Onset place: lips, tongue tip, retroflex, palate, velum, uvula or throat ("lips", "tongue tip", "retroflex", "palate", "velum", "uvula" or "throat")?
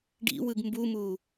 retroflex